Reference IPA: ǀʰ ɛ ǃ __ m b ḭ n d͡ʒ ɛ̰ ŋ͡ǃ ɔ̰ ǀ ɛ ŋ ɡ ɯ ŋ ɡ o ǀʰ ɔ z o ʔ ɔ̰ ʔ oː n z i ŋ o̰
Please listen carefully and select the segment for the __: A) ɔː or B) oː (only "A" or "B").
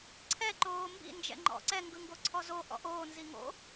B